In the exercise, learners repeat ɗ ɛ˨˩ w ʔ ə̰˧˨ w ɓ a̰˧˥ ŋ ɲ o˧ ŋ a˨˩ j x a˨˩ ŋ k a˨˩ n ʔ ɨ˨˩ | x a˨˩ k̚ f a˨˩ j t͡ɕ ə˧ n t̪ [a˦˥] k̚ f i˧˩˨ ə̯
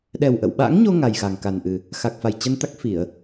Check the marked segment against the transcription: correct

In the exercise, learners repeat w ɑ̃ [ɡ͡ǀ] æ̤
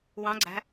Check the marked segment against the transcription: correct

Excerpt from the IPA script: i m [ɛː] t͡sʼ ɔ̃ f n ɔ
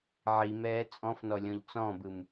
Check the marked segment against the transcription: correct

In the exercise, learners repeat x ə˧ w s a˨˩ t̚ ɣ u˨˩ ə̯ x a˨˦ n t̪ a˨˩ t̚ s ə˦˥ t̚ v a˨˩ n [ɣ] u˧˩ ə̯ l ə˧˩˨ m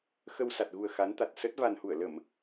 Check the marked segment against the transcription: incorrect: h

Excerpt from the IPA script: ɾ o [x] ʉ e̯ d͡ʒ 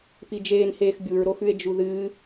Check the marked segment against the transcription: correct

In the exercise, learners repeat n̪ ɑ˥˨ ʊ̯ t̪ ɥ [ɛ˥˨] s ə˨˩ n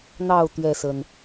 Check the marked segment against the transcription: correct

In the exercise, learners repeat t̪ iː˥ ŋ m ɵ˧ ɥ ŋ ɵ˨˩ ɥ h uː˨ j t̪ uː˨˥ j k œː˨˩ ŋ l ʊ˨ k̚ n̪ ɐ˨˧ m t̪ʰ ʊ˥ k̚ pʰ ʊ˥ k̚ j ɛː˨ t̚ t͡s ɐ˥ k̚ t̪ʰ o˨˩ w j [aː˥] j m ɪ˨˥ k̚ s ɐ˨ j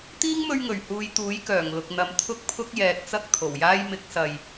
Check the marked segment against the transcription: correct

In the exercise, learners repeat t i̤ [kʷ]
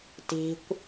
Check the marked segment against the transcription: correct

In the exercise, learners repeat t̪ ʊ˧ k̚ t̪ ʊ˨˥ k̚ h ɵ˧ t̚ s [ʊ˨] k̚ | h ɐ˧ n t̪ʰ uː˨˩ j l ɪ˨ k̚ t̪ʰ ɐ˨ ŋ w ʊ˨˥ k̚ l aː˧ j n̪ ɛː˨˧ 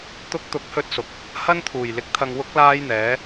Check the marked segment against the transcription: correct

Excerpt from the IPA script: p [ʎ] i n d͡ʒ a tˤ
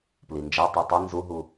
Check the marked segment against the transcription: incorrect: l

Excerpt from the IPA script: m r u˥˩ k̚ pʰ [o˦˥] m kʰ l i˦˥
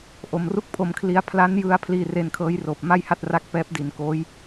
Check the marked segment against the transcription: incorrect: o˧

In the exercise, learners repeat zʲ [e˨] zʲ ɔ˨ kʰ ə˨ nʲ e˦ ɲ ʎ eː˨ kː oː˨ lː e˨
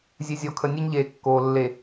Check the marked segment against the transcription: correct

